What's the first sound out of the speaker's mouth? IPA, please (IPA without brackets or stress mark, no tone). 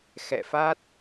x